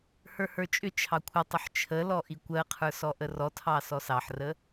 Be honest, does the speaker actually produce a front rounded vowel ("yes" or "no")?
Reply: yes